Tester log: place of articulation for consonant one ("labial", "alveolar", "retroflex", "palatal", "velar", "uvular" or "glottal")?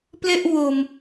labial